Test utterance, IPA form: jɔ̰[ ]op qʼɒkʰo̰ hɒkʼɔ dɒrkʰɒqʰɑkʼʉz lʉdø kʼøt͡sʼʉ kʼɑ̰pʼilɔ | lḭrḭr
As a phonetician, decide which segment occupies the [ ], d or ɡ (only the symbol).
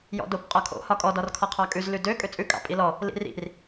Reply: d